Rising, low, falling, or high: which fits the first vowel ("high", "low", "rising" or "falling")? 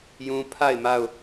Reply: high